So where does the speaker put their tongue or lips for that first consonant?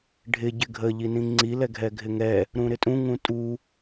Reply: retroflex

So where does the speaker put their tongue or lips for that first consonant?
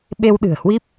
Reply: lips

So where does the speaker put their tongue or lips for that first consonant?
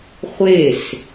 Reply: uvula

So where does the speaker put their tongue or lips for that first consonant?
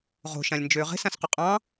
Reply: uvula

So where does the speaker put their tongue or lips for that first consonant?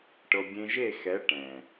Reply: retroflex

